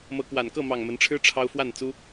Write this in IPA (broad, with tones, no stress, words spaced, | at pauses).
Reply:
mɤ˨˦kwa˨˩nkɤ˥˨mɑ˨˩ŋ mə˨˦nʈ͡ʂʰɻ̩˦ ʈ͡ʂʰɑ˦ʊ̯fwa˥˨nt͡su˦